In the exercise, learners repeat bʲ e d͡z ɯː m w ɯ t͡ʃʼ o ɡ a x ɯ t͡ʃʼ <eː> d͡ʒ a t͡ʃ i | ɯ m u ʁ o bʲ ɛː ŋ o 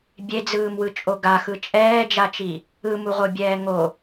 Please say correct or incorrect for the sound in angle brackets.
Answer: incorrect